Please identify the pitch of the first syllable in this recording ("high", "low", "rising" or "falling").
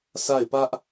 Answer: falling